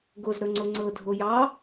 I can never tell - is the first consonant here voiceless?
no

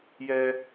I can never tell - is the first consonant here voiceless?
no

